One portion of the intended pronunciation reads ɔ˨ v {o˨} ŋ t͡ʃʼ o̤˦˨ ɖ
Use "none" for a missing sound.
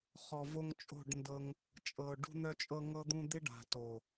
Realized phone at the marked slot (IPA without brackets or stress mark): o˧